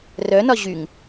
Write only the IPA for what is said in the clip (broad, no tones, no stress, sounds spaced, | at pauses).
r œ n ɒ ʑ y ŋ